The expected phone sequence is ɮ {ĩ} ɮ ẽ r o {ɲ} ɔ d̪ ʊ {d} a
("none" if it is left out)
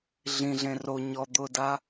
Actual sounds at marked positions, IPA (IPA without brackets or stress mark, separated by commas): ĩ, ɲ, d